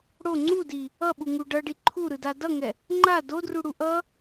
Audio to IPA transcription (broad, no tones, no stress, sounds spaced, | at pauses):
ɽ o ŋ͡ǀ u d i | ʌ ɓ u ŋ u ɖ ʌ ɖ i ǃʰ u ɾ ɯ d a d ʌ ŋ ɛ | ŋ͡ǃ a d o d r u ɽ u ʔ ʌ